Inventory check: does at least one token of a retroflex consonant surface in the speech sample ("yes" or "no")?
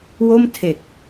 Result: no